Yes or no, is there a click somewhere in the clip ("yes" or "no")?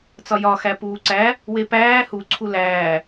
yes